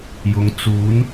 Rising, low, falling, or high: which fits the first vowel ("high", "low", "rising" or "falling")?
low